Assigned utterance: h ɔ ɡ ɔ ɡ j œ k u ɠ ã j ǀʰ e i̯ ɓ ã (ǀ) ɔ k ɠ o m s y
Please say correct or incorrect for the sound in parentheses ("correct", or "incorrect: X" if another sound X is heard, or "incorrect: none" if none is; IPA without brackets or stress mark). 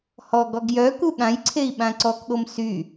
correct